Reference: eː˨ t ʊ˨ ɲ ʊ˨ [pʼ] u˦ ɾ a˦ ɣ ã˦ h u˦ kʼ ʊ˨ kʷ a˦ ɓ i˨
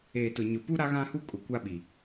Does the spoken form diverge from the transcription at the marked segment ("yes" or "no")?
yes